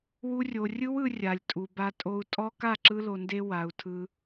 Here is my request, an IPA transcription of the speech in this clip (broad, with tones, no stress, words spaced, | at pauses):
wu˦rʲo˧ rʲɯ˦wɯ˧ rʲa˨lʲtʼu˨ba˧ tʼo˧u̯tʼɔ˦ ka˦˨ǁɯ˧lo˨nde˧ wa˨u̯tʰɯ˧